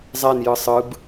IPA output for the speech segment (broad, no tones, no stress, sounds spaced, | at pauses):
zˤ ɛ n j ɯ sˤ ɯ b